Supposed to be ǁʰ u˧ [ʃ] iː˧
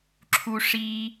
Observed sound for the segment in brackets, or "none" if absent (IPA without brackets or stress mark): ʂ